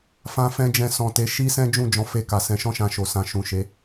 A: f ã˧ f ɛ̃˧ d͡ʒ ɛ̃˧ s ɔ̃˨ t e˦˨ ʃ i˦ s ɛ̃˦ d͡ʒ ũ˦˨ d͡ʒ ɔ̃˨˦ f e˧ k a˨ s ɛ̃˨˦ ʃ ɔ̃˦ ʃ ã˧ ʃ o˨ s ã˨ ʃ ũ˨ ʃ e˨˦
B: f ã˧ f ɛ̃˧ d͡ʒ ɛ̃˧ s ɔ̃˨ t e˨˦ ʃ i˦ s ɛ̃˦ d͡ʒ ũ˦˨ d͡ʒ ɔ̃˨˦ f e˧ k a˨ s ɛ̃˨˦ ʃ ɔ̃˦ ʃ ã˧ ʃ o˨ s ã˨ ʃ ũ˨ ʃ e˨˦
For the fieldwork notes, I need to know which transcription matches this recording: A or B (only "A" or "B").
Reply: B